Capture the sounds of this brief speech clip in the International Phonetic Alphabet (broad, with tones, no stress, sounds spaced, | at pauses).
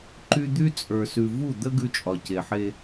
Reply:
ǃ y˦ d̪ y˦ t͡sʼ ə˞˨ s ʉ˨ v u˦˨ d̪ ə˦ ɡ ʉ˦ t͡ʃʼ ɒ˨ c e˨ ħ e˦